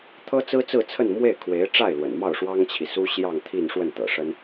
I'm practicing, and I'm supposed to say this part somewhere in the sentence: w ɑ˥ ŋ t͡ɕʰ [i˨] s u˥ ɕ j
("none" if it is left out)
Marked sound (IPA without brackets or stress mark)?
i˨